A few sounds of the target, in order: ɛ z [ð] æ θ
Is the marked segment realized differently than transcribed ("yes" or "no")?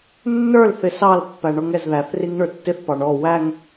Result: no